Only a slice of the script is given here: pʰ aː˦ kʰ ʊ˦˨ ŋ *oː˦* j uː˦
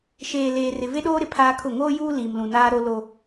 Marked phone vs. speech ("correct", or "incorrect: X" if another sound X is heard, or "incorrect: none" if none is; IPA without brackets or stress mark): correct